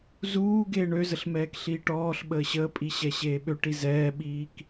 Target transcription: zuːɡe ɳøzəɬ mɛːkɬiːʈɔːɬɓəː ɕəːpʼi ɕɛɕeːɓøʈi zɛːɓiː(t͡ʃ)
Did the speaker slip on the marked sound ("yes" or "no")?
yes